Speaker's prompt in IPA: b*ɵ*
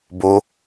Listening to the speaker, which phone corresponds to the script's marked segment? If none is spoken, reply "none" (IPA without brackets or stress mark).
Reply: o